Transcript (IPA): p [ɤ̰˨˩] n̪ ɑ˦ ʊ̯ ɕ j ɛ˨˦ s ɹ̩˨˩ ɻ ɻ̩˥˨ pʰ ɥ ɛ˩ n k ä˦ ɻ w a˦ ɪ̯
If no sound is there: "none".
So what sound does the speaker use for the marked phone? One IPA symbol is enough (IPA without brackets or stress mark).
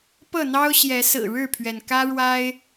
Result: ɤ˥˨